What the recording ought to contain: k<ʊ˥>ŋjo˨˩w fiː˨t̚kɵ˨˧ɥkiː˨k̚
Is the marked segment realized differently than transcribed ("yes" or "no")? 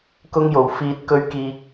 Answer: yes